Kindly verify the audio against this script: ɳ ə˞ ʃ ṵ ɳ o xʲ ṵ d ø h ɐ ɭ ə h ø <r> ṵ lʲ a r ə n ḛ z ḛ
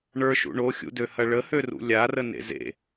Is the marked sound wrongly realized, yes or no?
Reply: no